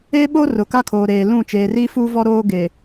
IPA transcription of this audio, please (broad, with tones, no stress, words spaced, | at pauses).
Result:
eː˦ɓoː˦ rʊ˨ka˦kʰoː˨ ɾeː˨lũ˦˨ t͡ʃeː˨riː˦fuː˦vɔ˦ ɾoː˦ɡeː˨